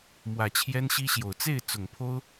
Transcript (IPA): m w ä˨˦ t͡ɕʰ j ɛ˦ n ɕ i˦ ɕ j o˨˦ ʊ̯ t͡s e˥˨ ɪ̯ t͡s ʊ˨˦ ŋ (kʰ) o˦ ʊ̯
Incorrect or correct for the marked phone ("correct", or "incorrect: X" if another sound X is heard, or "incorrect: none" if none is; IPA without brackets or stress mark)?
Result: incorrect: pʰ